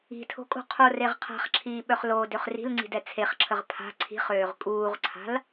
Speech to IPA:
i̤ tʰ o̤ kʼ o̤ qʰ o r e ʁ qʰ a̤ χ ǁʰ iː ɓ œ χ l oː d ø χ r i̤ l ŋ͡ǀ i̤ d ɛ t͡sʰ e χ ǁʰ ə ʁ pʰ a̤ ǀʰ i̤ χ øː ʁ kʼ uː ʁ ǀʰ a̤ l

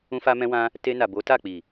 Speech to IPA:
ũ˧ f a˧ m ɛ̃˧ w ã˧ | t e˧ n a˨ b o˨˦ t a˦˨ k͡p i˨

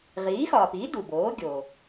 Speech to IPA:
ʁ iː˩˥ x ɒː˩ p iː˩˥ d u˩ b oː˩˥ ɡʲ o˩

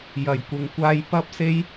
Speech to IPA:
j ɐ˨˩ j kʷ ɪ˨ ŋ kʷ aː˧ j p ɐ˥ p̚ s e˥ j

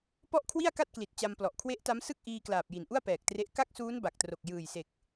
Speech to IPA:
p ɔ˥˩ ʔ kʰ w i˥˩ a̯ k a˥˩ t̚ k l i˨˩ t̚ t͡ɕ a˧ m p l ɔ˨˩ ʔ kʰ w e˦˥ ʔ t a˦˥ m s ɯ˥˩ k̚ ʔ iː˧ k l aː˨˩ p̚ j i˨˩ n ʔ u˥˩ a̯ p ɛː˨˩ k̚ t r e˦˥ ʔ k a˥˩ k̚ s uː˦˥ n b a˨˩ k̚ t r o˨˩ k̚ j ɯː˨˩ j s e˨˩ k̚

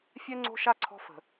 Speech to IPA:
fʲ ɛ˦ ŋ͡ǀ o̤˦ ʃ a˦ ǀʰ ɔ̤˦ f ə̤˨

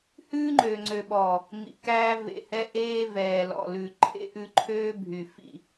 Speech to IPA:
h ʉː˦ ŋ͡ǃ øː˨ ŋ͡ǀ ø˨ ɓ ɔː˨ | m ḭ˨ k æː˦ v ḛ˨ h ɛ˦ ʔ eː˦ v ɛː˨ l ɔ̰˨ l ʉ˨ ǃʰ ḛ˦ ʔ ʉ˦ ǃʰ øː˦ bʱ y˨ f ḭ˦˨

